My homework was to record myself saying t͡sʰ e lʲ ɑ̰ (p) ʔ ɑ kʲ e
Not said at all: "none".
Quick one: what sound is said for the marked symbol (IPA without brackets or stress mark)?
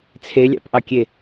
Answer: p